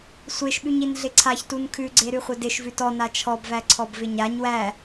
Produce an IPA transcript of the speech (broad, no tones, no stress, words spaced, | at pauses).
sʷeʃɓʉɲin ɮɪǀʰaçtun kʰʉɡ͡ǀeɾʉχʷɘ dɪʃ vʉtɔ nat͡ʃʰɔbvæ ǀʰɔbvɪɲaɲ wæ